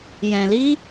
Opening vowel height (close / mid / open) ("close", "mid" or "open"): mid